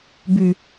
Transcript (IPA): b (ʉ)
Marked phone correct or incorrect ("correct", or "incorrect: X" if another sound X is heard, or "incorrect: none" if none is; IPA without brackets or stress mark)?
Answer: correct